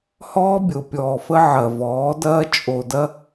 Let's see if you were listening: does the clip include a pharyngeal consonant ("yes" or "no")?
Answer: yes